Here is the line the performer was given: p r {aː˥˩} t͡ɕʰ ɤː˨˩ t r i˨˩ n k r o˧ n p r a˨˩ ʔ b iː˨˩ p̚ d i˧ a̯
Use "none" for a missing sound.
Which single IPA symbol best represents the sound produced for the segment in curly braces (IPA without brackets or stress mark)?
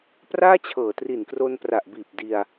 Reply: aː˥˩